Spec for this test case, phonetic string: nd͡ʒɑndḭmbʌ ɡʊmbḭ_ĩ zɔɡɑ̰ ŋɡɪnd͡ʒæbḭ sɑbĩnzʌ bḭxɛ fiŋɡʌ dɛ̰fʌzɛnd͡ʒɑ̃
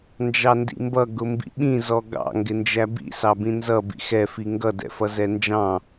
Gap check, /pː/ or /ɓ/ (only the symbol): ɓ